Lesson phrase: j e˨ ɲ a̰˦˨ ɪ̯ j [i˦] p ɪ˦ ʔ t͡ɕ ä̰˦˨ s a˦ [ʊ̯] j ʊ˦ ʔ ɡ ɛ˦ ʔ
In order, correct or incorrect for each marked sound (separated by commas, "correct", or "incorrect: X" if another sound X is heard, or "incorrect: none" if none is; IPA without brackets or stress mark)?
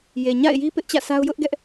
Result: correct, correct